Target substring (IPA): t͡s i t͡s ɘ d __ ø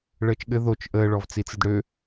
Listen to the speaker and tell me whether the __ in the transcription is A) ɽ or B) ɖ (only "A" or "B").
A